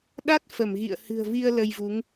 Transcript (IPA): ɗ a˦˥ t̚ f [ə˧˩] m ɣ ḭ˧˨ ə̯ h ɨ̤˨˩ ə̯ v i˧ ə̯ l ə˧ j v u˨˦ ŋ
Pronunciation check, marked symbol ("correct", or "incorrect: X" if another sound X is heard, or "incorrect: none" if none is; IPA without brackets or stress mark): correct